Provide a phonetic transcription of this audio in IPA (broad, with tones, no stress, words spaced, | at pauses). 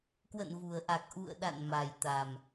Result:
kwə̰˧˨nvu˨˩ə̯ʔa˨˩k̚ ʔṵ˧˨ə̯ɗa̰˧˨n ma˨˩jt̪a˨˩m